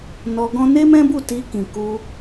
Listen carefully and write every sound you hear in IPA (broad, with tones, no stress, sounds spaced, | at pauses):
n ɔ˧ ɡ ɔ̃˦ n e˦ m ɛ̃˦ b u˦˨ t i˧ k ĩ˨ k u˧